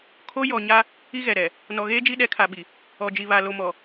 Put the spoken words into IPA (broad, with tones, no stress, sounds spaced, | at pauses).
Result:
kʰ o˦ j ɔ˨ ɲ a˦ | i˦ ɣ ɛ˨ ɾ ɛ˨ | n ɔ˨ ɣ eː˦ d͡ʒ i˦ ɗ ɛ˨˦ kʰ a˨ ɓ i˨ | ɔ˨ d͡ʒ i˨ β a˨ l o˨ m ɔ˨